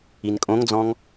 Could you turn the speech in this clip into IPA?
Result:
i n kʼ õ ŋ d͡z ɔ̃ ŋ

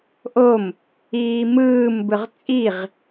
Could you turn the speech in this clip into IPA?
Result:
ʔ o m | iː m ɯː m b ɯ ʁ t͡sʼ i ʁ

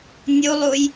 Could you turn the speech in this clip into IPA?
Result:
nʲ u lˠ u j

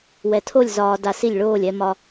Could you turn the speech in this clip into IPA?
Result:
w ɛ˧ tʰ o˥˧ lʲ z ɒː˧ d a˧ s i˥˧ lʲ ɭ oː˥˧ lʲ ɛ˧ m ɒ˧

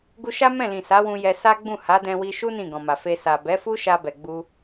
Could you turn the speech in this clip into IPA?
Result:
ɡ u˧ ʃ a˦ m ɛ̃˦˨ l ĩ˨ s a˨˦ w ũ˧ j ɛ˧ s a˦ ɡ͡b ũ˦˨ h a˨˦ d ɛ̃˧ w i˧ ʃ u˦ n ĩ˦˨ ɡ ɔ̃˨ m a˨ f e˧ s a˨ b ɛ˨˦ f u˦ ʃ a˧ b ɛ˨ ɡ͡b u˧

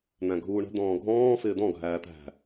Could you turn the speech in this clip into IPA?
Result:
n̪ æ̃ ɡʱ uː ɳ ə̤ d̪ ɔ̃ː ɡʱ ɔ̃ː f ɪː d̪ ɔ̃ ɡʱ æː t̪ æ̤

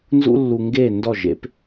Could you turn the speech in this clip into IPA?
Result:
n z ṵ˥ lː u˧ ŋ ɡ eː˥˩ n d ɔ˥˩ ʒ ḛ˩˥ p

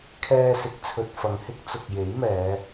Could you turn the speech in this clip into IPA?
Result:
kʰ ɛː˧ s ɪ˨˥ k̚ t͡sʰ ɵ˨ t̚ f ɐ˨ ŋ h ɪ˥ k̚ t͡s ʊ˨ k̚ j e˨˥ j m ɛː˨˧

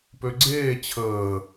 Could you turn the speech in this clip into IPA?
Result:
p ø ɡ͡ǀ eː t͡ɕʰ əː

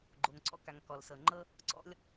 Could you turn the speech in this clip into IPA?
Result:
ɡ͡ǃ o˩ ŋ ǀ ɔ̰˥ k a˩ ŋ k ɔ˩ l s ɤ˩ ŋ͡ǃ ɤ˥ | ǀ ɔ̰˥ lʲ

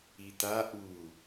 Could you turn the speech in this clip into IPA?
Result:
i t a ʔ u

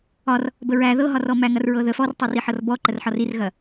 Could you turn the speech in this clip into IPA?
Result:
ɒ r | b ə ɹ æ ð ɤ ɦ ɒ r ɔ m æ ŋ ɐ r ɹ ɤ ð ə f ɔ r tˤ ɤ r i ħ ɤ r b ɔ ǃ ə r ħ ɒ r i r ɣ ɐ

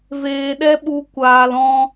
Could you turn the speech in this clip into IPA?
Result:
v eː˧ ɗ ɛ˦ ɓ u˦ kʷ aː˧ l ɔ̃˧

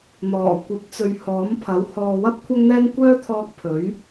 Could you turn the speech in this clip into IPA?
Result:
n̪ ɔː˨˩ kʷ ɐ˨˥ p̚ t͡s ɵ˨ ɥ h ɔː˨˥ m pʰ ɐ˨˥ w h ɔː˨ w ɐ˥ p̚ kʷʰ ɐ˧ ŋ n̪ ɛː˧ ŋ kʷ œː˥ t̪ʰ ɔː˧ k̚ pʰ ɵ˨˥ ɥ

